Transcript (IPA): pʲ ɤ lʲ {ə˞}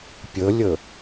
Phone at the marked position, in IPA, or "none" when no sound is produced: ɤ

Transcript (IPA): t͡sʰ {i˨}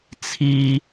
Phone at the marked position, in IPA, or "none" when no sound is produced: i˦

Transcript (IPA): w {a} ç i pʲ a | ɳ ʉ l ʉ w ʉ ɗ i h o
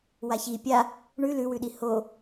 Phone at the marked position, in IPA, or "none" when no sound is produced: a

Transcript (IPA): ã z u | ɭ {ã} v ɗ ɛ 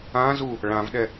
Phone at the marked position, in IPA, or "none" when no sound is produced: ã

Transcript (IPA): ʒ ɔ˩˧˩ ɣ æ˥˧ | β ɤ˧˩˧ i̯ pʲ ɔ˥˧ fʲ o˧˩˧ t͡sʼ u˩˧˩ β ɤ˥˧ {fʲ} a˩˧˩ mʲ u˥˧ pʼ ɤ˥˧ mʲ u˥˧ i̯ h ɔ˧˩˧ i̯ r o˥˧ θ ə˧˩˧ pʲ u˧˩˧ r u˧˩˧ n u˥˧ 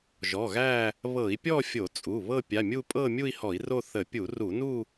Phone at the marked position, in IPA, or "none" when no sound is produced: pʲ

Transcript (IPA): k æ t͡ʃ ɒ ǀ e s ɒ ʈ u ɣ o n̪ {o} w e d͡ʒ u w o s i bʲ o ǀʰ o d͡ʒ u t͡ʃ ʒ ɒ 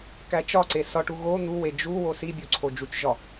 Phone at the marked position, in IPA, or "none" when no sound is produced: u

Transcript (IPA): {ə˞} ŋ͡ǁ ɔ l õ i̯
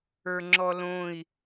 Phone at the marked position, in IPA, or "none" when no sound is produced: ə˞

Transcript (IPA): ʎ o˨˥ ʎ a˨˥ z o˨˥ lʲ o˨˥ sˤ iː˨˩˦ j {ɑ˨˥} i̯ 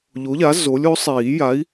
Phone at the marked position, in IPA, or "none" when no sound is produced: a˨˥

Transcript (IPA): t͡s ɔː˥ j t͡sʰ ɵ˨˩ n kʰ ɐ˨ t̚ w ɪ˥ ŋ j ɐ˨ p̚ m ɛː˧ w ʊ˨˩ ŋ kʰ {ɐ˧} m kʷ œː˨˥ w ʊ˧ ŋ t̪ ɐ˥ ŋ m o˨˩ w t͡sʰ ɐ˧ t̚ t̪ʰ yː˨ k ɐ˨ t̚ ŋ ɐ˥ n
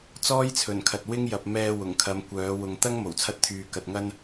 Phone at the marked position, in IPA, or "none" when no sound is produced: ɐ˨˧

